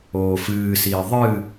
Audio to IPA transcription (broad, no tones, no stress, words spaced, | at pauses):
oːfɨːsiː ðˤɨ